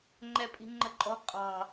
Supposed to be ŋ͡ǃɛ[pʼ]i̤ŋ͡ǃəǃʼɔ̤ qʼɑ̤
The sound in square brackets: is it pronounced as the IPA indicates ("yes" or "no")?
yes